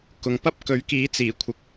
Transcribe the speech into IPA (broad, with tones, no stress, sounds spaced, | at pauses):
k ʊ˨ ŋ p ɐ˥ p̚ k ɵ˨˥ ɥ k iː˨˥ t͡s iː˨˩ kʷʰ ɪ˨ k̚